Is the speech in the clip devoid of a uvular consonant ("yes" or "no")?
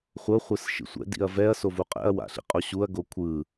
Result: no